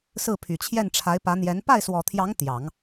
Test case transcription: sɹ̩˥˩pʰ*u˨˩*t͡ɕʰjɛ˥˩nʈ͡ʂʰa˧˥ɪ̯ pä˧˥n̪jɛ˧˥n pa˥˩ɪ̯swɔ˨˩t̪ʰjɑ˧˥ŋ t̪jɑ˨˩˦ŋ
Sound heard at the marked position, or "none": y˨˩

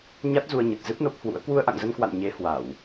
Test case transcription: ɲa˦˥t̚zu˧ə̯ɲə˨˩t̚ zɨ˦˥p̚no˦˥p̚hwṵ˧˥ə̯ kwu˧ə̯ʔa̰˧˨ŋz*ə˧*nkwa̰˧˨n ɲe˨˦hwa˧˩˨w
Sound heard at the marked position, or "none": ə˧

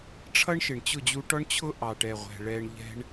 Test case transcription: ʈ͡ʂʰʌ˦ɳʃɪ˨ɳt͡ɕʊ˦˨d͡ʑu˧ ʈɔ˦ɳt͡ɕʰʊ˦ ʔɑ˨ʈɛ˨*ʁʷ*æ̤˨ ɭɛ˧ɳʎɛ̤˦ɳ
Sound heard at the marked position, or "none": ʁʷ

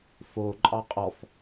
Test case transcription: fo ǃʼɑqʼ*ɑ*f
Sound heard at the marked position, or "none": ɔ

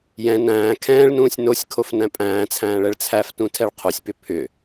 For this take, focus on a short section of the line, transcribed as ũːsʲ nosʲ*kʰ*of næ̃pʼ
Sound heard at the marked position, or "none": kʰ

